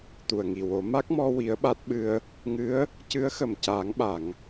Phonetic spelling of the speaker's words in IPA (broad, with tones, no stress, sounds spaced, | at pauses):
t̪ u˨˩ ə̯ ŋ i˨˩ w o˨˩˦ m a˦˥ k̚ m ɔ˧ w i˧˥ ə̯ ɓ a˦˥ t̚ ɓ ɨ˧ ə̯ | ŋ ɨ˧˥ ə̯ | c ɨ˧˥ ə̯ x ə˨˩ m c aː˨˩˦ ŋ ɓ a˨˩˨ ŋ